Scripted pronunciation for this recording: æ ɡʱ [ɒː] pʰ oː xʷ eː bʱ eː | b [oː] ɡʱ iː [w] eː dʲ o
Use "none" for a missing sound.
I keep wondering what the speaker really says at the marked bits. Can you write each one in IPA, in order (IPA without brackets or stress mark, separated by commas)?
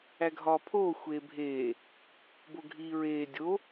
ɒː, o, ɹ